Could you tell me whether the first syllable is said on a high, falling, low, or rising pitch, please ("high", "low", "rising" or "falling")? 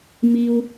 low